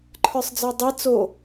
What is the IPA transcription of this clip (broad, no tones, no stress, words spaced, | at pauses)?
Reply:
ǃʰə˞sˤd͡zə˞dˤi t͡so